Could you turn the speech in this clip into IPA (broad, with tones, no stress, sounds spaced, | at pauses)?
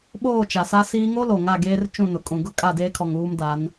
ɓ oː˦˨ t͡ʃ a˨ s a˦ s iː˦ ŋ o˦ l o˨ ŋ a˦˨ ɡ eː˦ r t͡ʃ ũ˦˨ n ʊ˨ kʼ ũ˨ ɡ ʊ˦ kʼ a˦˨ d eː˦ kʰ ɔ˨ ŋ uː˦ m d a˨˦ n